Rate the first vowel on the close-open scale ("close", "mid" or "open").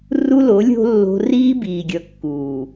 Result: close